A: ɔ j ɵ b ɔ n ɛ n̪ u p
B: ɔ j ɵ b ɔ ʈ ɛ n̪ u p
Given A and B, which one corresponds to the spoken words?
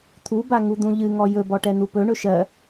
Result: B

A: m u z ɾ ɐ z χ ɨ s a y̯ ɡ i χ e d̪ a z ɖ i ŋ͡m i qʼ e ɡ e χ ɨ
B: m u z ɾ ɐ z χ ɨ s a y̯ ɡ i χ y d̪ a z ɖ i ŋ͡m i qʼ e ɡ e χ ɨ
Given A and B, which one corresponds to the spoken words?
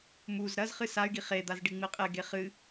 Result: A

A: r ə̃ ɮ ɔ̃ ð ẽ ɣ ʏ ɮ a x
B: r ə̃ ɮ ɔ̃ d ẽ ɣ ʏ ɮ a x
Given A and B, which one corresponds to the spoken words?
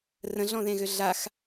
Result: A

